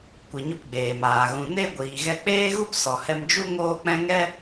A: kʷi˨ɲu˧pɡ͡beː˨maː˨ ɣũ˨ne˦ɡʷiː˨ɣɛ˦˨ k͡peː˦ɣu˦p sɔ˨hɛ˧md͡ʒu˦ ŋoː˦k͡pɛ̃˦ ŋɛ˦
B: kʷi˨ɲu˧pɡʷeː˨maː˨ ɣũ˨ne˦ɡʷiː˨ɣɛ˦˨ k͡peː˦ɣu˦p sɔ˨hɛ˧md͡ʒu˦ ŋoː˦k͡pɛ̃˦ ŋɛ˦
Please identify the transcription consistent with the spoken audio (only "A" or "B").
A